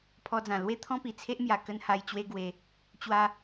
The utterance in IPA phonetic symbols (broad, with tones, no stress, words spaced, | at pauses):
pʰɔ˧d͡zã˨˩ lwe˦ t̪ʰɔ̃˦pi˨˩t͡sʰe˦ʔmja˨˩ kə˦n ha˧jt͡ɕwe˦ɡwe˧ | t͡ɕwa˦